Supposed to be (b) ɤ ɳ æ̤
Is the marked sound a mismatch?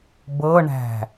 no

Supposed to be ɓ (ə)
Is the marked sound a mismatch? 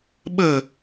no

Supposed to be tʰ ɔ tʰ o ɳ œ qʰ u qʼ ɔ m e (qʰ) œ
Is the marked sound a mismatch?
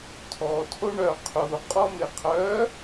no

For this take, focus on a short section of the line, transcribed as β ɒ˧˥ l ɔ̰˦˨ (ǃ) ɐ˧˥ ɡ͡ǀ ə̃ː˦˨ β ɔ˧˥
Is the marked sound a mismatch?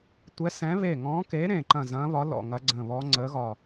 yes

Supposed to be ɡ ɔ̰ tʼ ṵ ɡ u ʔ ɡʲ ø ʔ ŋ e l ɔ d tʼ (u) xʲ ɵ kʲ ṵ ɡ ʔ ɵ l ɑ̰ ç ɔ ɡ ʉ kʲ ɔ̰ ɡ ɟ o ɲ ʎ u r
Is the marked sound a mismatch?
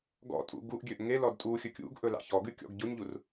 no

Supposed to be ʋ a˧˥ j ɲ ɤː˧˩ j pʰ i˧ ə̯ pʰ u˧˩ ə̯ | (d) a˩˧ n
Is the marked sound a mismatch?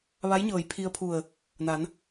yes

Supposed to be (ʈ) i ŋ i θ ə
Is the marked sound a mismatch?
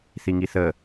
yes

